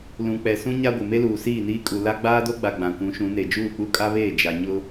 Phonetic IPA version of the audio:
l ũ˨ k͡p ɛ˨ s ũ˦ ɲ a˦ ɡʷ ɪ˨ m e˦ l uː˨ s iː˦˨ n iː˦ kʼ u˨ l a˦ ɡ͡b aː˦ d o˦ ɡ͡b a˨ ɡ͡b ã˨ kʷ ũ˨˦ ʃ ũ˨˦ n e˨ d͡ʒ uː˦˨ k͡p u˦ kʼ a˦ β eː˦˨ d͡ʒ a˨ ɲ ʊ˦

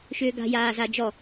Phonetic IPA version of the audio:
ʃ ʏː ɡ a̤ j aː z a d͡ʒ ɔ

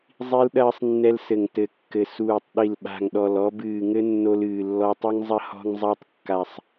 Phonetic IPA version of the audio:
zˤ i˧ l ɗ ɐː˧ sˤ nː ɛ˧ l s ɘ˨˩ ŋ t ɘ˨˩ kː ɘ˨˩ s uː˨˩ tˤ ɗ i˨˩ l ɓ a̤˨˩ ŋ ɗ ɔ˨˩ l ɔ˧ b ɨː˨˩ ŋ ɘ˧ nː o˧ l ɨː˨˩ lː ɔ˧ tˤ ɨ˧ ŋ zˤ ɐ˧ h ɔ̤˧ ŋ zˤ a˧ tˤ kː a˨˩ sˤ

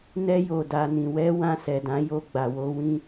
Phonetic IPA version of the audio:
n ɛ˧ j o˨ d a˨ n ĩ˨ w ɛ˧ w ã˧ s ɛ˨ d ã˨˦ j o˧ ɡ͡b a˨ w o˧ w ĩ˦

